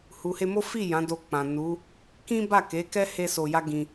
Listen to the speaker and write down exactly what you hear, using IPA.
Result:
h u˨ h e˧ m o˦ f i˦˨ j ã˨˦ d o˧ k͡p ã˨ n u˨˦ | k ĩ˦ b a˦˨ k e˨˦ k ɛ˦ h e˦ s o˧ j a˦ ɡ ĩ˧

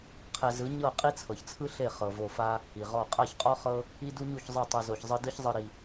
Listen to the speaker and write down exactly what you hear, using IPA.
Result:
qʰ ɛ˧ z ɯ˨˦ ɲ ɤ˦˨ qʼ i˦ t͡sʰ ɤ˨ ç t͡sʰ ɯ˦ ɬ e˦˨ χ ɤ˨ v o˧ f a˦ | i˨ ʁ ɔ˦˨ qʼ a˦˨ ç qʼ ɔ˦ χ ɤ˦ | i˦ d u˦ ɲ u˦˨ ç zˤ ɤ˦˨ tˤ ɯ˨ z o˨ ç zˤ ɯ˧ d ɯ˦ ç zˤ ɯ˧ ɾ i˧

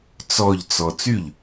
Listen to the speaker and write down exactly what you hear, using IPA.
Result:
t͡s ɔ ʎ t͡s ɔ t͡s y ʎ

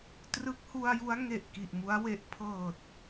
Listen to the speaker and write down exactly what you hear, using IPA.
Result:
t r ɯ˦˥ k̚ h u˧ a̯ j u˦˥ a̯ ŋ e˨˩ ʔ k i˨˩ ʔ m u˦˥ a̯ w e˦˥ ʔ pʰ ɤː˨˩ t̚

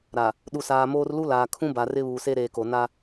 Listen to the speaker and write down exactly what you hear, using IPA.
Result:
ɾ a˨ | ɗ u˨ s aː˨ m oː˦ r l u˦ l aː˨ kʰ ũ˦ b a˨ r ɪ˦ β uː˨ s e˦ ɾ eː˨ k o˨ n a˦

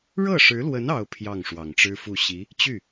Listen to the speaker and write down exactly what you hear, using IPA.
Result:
ɻ ɤ˥˩ ʂ ɻ̩˧˥ l w ə˧˥ n ɑ˥ ʊ̯ pʰ j ɑ˥˩ ŋ ʂ w ɑ˨˩ ŋ ʈ͡ʂ ɻ̩˥ f u˥˩ ɕ i˧˥ | t͡ɕ y˥˩

